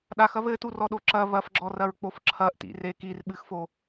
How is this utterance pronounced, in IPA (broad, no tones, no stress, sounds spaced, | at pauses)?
ɗ a x ɐ β ɘ t u r ɔ ɗ o ǁ ɐ β ɐ f ɡ͡ǁ ɔ r ɐ ɹ k͡p o f ǁʰ ɐ ʔ t ḭ r e k i r ɓ ɨ x f o